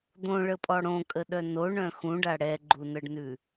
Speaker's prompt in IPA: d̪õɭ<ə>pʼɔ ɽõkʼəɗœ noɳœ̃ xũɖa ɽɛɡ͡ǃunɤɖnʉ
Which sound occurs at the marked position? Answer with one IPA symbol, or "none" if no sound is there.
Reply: ə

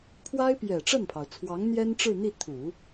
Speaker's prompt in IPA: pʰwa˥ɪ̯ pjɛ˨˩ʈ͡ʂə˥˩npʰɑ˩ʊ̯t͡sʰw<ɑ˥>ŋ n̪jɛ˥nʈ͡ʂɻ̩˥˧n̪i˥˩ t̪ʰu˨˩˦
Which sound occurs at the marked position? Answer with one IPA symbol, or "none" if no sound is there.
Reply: ɑ˧˥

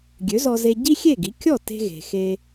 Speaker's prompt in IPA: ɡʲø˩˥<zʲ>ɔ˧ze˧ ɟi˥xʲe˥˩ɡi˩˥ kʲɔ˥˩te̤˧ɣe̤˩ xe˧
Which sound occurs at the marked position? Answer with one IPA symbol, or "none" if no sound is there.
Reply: z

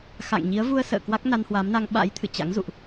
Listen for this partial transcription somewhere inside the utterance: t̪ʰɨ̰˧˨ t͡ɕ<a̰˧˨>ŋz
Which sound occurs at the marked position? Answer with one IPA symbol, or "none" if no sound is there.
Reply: a̰˧˥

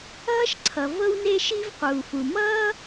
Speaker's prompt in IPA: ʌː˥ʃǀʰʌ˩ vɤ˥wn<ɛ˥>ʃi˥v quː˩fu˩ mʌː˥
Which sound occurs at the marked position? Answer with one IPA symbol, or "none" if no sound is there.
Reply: e˥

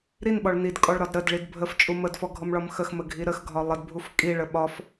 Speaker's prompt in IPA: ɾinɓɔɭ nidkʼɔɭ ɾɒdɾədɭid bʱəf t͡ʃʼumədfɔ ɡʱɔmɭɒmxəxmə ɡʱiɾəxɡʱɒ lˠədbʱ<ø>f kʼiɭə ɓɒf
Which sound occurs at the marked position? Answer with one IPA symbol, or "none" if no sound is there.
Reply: u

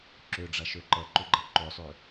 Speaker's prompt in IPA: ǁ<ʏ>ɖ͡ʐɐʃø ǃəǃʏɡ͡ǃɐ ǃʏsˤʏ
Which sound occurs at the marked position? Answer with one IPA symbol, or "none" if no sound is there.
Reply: ʏ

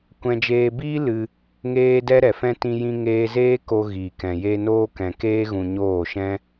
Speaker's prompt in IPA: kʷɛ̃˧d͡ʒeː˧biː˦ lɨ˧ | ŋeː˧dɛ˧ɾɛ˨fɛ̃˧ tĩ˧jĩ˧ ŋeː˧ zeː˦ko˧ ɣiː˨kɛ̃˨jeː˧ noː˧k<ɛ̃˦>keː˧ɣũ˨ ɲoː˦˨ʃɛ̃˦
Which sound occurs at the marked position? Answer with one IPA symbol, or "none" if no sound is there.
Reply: ɛ̃˨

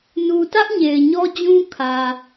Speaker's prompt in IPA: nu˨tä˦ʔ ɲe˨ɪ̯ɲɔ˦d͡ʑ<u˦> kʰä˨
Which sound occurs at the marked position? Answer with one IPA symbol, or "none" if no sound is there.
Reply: ũ˦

